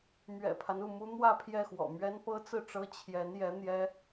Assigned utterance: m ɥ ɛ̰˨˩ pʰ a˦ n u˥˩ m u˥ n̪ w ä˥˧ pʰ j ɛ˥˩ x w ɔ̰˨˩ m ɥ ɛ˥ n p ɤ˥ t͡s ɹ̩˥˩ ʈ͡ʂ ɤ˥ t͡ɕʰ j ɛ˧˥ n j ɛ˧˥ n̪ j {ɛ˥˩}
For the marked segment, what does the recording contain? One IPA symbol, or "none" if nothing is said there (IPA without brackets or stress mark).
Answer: ɛ˥